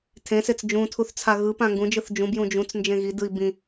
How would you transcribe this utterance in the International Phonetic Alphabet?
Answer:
tʰẽset͡s d͡ʒũtʰuθ t͡sʰaɣɯpã ŋɡũd͡ʒɯθ d͡ʒũbjũ d͡ʒũt͡s nd͡ʒẽɣidɯi̯ bĩ

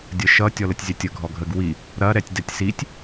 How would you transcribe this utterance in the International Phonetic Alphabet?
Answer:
dʲəʃʌ tʲɔlətʲzʲɐtʲə ɡʱɔɡʱəɡ wi | ɾɐ ɾɛtʲdɛtʲsitʲ

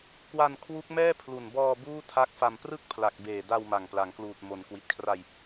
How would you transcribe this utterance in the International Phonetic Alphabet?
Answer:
kwa˧n kʰwu˦˥k̚mɛː˥˩ pʰlu˨˩nbɔː˧ buː˥˩ tʰa˦˥k̚fa˧m prɯ˥˩k̚pʰla˨˩k̚beː˨˩ da˧wma˨˩ŋ pla˩˦ŋkluː˨˩t̚ mo˩˦nkwi˨˩t̚kʰra˧j

